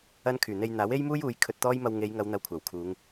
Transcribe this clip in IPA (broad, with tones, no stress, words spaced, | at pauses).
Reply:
ɐ˥nkʰyː˨˩ n̪e˧jn̪aː˨˥w e˥jmuː˥juː˨˧j kʰɵ˧t̚t̪ɔː˥j mɐ˧wŋe˨˧jŋɐ˨˧w n̪ɐ˧wkʷʰaː˨˩wkʰuː˨˧ŋ